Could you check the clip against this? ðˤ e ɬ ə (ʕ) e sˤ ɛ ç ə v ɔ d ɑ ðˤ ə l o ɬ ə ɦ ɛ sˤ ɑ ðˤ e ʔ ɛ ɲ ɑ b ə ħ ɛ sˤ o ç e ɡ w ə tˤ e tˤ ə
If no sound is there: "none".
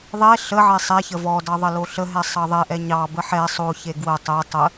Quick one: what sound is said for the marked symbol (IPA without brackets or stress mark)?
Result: ʕ